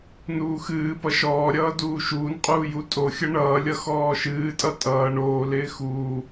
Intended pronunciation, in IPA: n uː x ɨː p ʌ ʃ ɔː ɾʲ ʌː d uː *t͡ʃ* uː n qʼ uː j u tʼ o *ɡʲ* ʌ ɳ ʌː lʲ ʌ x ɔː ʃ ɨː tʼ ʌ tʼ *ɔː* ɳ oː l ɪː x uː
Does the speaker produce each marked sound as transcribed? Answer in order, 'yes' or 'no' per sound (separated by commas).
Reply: no, no, no